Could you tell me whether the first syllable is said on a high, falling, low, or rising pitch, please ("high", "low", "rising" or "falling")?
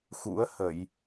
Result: rising